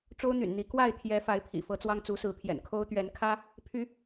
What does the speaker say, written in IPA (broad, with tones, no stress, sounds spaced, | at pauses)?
ʈ͡ʂ o˦ ʊ̯ n̪ y̰˨˩ n n̪ i˨˦ k w a˥˨ ɪ̯ t̪ʰ j ɛ˨˦ f a˨˦ ɪ̯ pʰ ḭ˨˩ f ɤ˨˦ t͡s w ɑ˦ ŋ t͡s u˨˦ s ɹ̩˨˦ pʰ j ɛ̰˨˩ n kʰ o˦ ʊ̯ t̪ ɥ ɛ˨˦ n kʰ ä˦ | pʰ y˨˦